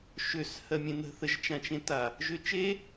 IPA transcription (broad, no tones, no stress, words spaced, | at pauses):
ʃøs hɜmʲẽnə̤ θəʒt͡ʃãt͡ʃẽta | ʒøt͡ʃe